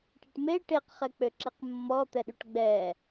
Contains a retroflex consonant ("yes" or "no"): yes